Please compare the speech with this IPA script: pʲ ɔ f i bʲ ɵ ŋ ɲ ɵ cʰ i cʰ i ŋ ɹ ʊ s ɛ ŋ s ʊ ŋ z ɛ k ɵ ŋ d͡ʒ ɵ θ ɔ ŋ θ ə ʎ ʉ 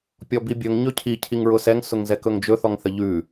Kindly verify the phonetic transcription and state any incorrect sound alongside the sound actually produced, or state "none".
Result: f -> b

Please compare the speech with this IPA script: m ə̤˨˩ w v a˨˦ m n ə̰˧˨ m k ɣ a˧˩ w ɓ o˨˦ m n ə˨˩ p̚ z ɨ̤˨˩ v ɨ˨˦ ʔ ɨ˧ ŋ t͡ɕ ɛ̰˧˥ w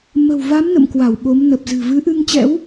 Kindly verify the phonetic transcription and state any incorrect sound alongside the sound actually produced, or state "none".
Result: ɣ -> w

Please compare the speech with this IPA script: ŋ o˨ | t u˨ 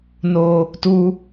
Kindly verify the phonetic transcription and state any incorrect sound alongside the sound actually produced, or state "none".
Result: ŋ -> n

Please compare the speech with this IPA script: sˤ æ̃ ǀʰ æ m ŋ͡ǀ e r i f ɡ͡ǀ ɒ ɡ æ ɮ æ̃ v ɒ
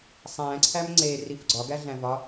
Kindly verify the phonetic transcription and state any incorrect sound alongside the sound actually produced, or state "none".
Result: none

